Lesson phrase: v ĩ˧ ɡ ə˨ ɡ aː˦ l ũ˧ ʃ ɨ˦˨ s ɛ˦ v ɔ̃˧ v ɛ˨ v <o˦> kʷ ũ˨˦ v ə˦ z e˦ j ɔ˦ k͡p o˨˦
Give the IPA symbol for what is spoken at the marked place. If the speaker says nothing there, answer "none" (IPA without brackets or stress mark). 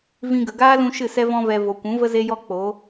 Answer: o˨